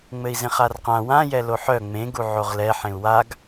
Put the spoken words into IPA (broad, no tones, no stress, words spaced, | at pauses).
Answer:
ŋ͡mɘi̯zẽχarqã wã jɛloħœ ŋ͡mẽɡu ʕoʁlɛ ħẽu̯waɡ